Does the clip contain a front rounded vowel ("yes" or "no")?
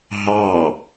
no